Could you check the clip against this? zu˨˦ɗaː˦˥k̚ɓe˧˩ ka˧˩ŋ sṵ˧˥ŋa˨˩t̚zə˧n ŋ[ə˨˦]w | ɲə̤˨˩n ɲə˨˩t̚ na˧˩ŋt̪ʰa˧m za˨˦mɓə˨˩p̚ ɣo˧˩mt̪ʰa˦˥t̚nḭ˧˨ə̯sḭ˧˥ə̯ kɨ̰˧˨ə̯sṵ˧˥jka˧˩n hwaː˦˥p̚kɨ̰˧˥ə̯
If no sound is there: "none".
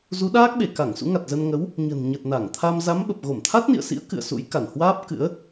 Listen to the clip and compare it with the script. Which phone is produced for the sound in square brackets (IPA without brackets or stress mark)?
ə˨˦